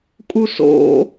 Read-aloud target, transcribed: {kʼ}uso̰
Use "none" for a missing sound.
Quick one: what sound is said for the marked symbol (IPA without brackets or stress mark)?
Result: kʼ